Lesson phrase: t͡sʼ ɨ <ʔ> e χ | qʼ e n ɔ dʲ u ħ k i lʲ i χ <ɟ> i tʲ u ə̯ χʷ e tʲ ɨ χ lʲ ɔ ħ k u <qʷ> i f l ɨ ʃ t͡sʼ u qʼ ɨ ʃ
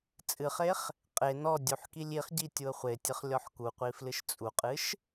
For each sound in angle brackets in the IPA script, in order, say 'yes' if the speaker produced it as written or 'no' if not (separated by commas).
no, yes, yes